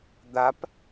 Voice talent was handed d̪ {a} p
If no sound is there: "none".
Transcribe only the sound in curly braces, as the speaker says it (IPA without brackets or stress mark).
a